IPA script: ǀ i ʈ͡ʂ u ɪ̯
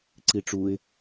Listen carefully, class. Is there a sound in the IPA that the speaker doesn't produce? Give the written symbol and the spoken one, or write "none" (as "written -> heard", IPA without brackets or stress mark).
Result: none